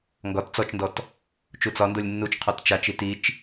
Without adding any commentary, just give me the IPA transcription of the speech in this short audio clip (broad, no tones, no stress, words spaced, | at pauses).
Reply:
ŋɡɒt t͡sɔt͡ʃndɔt | t͡ʃut͡sɒndolʲ nːut͡ʃ qʰɔtt͡ʃat͡ʃi tit͡ʃ